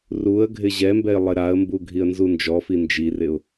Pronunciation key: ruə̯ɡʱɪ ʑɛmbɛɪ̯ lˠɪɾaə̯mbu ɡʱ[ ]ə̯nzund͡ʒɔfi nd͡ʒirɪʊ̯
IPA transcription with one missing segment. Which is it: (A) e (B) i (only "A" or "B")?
B